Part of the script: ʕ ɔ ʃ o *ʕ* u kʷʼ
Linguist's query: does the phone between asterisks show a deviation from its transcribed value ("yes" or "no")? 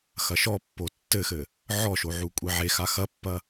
no